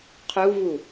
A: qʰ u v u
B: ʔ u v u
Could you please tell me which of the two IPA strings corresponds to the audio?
A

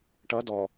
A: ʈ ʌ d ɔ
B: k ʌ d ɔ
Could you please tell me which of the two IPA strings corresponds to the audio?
A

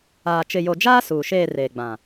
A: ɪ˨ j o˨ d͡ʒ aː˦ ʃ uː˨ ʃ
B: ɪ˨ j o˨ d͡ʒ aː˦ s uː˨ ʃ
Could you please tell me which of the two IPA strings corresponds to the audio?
B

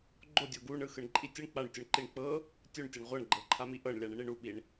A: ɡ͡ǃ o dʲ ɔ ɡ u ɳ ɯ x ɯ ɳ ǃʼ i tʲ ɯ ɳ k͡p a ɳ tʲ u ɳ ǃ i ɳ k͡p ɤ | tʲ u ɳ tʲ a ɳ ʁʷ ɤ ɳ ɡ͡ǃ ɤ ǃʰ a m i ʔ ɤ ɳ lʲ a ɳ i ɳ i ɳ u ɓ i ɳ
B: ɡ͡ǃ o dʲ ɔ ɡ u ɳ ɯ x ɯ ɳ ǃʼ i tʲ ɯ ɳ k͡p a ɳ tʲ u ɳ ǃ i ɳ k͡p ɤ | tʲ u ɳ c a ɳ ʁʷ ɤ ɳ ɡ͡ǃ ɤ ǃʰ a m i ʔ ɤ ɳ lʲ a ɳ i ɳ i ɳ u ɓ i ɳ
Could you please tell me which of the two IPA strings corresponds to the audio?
A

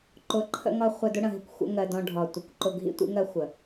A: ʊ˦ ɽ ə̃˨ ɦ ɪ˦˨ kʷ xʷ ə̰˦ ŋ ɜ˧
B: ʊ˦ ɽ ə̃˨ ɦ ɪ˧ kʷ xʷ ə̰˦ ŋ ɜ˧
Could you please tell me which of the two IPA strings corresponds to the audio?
A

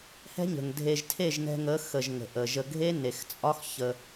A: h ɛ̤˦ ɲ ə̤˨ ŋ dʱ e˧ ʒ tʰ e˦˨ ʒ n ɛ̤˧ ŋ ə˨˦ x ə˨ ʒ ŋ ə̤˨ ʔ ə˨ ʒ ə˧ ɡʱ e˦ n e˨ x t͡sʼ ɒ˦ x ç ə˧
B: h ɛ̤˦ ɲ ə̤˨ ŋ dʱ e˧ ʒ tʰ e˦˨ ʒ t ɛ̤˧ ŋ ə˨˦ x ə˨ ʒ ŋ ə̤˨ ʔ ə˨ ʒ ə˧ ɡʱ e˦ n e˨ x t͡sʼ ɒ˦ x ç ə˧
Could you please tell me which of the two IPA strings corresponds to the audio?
A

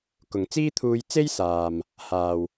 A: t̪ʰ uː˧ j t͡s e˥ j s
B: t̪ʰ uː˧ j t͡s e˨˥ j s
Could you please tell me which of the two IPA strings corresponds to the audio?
A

